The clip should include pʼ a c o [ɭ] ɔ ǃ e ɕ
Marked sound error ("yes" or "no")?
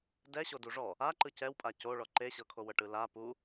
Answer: no